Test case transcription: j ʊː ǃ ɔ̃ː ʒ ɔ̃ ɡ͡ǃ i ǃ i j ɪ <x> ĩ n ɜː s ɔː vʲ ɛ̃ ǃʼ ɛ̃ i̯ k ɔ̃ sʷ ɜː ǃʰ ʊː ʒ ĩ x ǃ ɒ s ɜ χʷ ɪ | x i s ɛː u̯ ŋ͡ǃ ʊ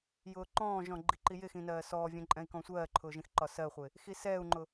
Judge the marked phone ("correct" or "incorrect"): correct